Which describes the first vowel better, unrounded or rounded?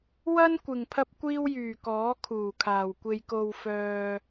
unrounded